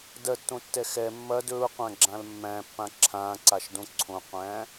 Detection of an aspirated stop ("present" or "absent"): present